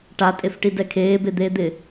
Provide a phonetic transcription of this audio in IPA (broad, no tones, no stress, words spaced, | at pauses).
ʈatʼefʈi dɛkʰeːbe d̪eːd̪ɪ